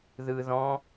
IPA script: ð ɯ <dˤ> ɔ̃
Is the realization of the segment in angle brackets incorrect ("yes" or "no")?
yes